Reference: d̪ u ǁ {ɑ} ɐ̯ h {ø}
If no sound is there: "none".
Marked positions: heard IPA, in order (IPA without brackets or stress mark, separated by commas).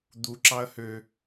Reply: ɑ, ø